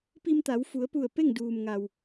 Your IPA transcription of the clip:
p i˧ m t̪ a˩˧ w f u˩˧ ə̯ p u˧˩ ə̯ p e˥˨ ŋ d uː˩ m ŋ a˩ w

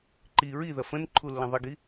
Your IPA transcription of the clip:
ǃ i ɹ i ð ɐ f ə̃ n ǃʰ u lː ɐ̃ ðˤ ɪ ɡ i

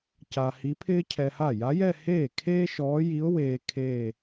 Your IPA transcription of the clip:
c a˧ h i˧˥ pʰ ɪː˥ cʰ ɛ˧ h a˥˩ j a˧˥ j ɛ˥˧ h eː˥˩ kʰ eː˥ ʃ ɔː˧˥ j i˧˥ ʊ̯ w eː˧ kʰ eː˥˧

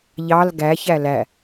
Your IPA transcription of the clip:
ʎ ɑ l ɡ æ ç æ l æ

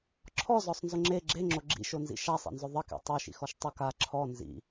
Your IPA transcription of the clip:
ǁʰ ɔ z ɔ sˤ n z ʊ ŋ͡ǁ e ɡ͡ǁ e ŋ͡ǁ o ɡ͡ǁ ḭ ʃ o n z ḭ ʃ a sˤ ḛ n z ʊ ðˤ ɪ k ḛ tˤ o ʃ ḭ x ɔ ʃ tˤ ʊ k a ǁʰ ɔ n z ḭ

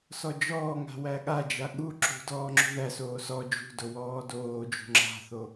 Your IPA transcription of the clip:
s ɔ d͡ʒ ɔː ŋ a̤ w æ ɠ a d͡ʒ a ɠ u ǁ ṳ d ɔː ŋ͡ǁ ṳ ð æ s oː s ɔ d͡ʒ ṳ d o w ɔː d oː d͡ʒ ṳ ŋ͡ǁ a̤ θ o

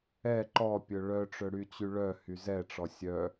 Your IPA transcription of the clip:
ɛ ǃ ɔ pʲ ɵ ɭ œ ʈ͡ʂ ɵ ɽ y t͡ɕ y ɭ œ h y z ɛ ʈ͡ʂ ɔ sʲ œ

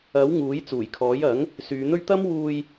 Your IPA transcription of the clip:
ɐ˨˥ w ŋ uː˨˥ j t͡s uː˨˩ j kʰ ɔː˨˥ j ɐ˨˥ ŋ | s yː˨˧ n̪ ɵ˥ ɥ t̪ ɐ˥ m w uː˧ j

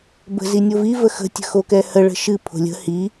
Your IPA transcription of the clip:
b ə̤ z i nʲ o v i v ə x ə̤ tʲ ə̤ x o k ɛ h ə ɭ ə̤ ʃ ɨ pʰ o̤ lʲ ə̤ h i

